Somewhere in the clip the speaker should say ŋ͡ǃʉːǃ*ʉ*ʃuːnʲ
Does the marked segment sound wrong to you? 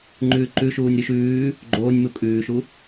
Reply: no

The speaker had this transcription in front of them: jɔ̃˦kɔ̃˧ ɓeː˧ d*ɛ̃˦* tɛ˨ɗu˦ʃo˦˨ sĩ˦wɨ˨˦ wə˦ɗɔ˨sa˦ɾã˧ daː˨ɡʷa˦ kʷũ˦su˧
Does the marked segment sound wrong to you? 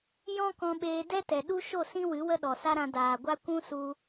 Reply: yes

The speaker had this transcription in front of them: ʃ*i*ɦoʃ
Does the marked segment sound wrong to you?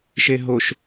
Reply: yes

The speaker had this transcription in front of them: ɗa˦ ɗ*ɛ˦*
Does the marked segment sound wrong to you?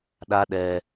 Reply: no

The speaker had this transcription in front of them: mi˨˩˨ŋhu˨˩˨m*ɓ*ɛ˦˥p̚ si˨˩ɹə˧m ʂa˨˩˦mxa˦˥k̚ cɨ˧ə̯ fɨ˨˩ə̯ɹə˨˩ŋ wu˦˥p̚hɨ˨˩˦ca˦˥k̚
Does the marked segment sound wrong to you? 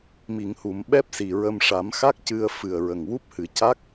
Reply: no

